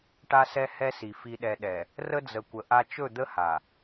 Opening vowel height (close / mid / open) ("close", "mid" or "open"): open